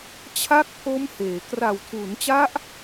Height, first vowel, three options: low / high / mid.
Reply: low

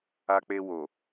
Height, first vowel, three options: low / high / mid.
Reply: low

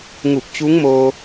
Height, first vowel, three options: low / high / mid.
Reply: high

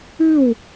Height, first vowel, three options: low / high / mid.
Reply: high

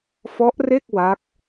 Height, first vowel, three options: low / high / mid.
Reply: mid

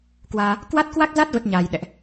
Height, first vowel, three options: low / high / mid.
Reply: low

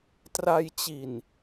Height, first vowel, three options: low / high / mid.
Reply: low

